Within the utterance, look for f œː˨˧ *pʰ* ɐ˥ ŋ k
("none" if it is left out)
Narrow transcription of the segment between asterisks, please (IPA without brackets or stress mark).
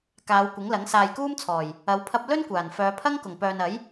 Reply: pʰ